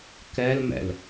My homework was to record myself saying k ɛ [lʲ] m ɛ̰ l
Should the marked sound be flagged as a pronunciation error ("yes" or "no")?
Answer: yes